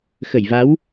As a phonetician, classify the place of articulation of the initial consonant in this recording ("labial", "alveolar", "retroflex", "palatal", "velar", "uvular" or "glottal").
velar